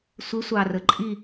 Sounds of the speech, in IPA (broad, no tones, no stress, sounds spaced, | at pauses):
sʷ ɪ sʷ ɑ r ə ǃʼ i